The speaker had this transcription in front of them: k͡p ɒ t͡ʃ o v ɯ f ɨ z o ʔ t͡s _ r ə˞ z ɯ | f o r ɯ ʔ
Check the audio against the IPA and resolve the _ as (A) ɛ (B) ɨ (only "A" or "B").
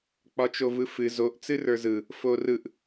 B